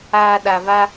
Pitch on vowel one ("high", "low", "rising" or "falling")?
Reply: low